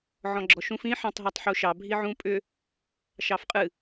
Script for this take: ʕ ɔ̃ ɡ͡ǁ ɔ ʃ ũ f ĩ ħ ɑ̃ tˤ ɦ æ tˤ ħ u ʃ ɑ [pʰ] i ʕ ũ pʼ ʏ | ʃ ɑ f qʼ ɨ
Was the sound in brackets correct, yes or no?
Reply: no